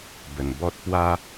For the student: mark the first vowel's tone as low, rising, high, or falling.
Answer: low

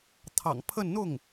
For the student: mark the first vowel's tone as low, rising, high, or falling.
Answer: low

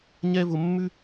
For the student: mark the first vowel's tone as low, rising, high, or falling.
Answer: high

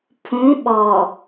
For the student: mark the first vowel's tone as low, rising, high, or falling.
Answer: rising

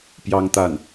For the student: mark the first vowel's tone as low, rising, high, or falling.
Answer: high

